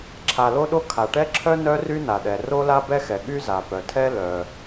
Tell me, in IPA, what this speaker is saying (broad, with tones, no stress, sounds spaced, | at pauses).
ǁʰ a˩ l o˥ ɗ o˥ kʰ a˩ ʈ ɛ˥ ǁʰ œ˥ n œ˥ r y˥ n a˩ ɗ ɛ˩ r o˥ l a˥ b ɛ˥ x ɛ˩ ɠ y˥ z a˩ p œ˩ tʰ ɛ˥ l œ˩